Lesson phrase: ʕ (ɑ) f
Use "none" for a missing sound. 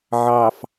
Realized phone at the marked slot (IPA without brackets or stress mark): ɑ